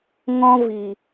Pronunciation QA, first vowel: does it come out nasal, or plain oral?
nasal